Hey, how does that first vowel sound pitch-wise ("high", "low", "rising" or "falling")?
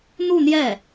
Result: falling